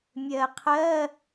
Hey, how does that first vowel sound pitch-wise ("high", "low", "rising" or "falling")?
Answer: low